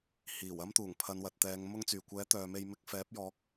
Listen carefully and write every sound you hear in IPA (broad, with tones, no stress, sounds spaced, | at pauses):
h iː˨˩ w ɐ˥ m t̪ uː˨˩ ŋ pʰ ɐ˨˧ n w ɐ˨ t̚ t̪ ɛː˨˧ ŋ m ʊ˧ ŋ t͡s yː˨˩ kʷ ɛː˨˥ t̪ œː˨ m e˧ j m ɪ˧ k̚ f ɛː˨˥ p̚ j ɔː˨˥ k̚